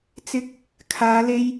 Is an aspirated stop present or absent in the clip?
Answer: present